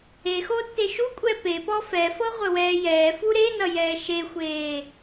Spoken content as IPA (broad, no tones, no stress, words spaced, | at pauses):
exo tːeʃukʷʼɛ pepɔ fɛfɤ ʁʷɘwɛːjɛːfu ɾenʌ jɛːʃexʷeː